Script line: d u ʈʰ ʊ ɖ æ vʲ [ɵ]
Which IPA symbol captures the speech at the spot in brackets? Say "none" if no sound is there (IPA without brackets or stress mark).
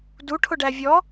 ɔ